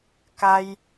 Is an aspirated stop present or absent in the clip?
absent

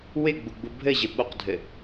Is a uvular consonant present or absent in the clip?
present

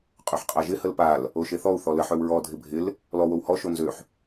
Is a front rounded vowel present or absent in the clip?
present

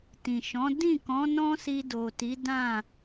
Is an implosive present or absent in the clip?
absent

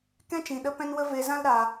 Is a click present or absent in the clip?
absent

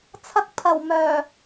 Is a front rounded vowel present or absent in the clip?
present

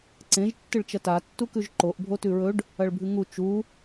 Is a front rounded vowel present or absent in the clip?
absent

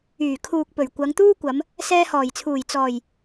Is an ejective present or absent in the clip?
absent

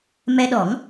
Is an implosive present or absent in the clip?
present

